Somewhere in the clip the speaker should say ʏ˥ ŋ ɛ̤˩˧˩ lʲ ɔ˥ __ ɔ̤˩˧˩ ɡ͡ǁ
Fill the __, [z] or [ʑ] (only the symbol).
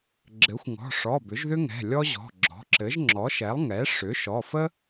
ʑ